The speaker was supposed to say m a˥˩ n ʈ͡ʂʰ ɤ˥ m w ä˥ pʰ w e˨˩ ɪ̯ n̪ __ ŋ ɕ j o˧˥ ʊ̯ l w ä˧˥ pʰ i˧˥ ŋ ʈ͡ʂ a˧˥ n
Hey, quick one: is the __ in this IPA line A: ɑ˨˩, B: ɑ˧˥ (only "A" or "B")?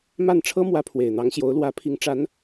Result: B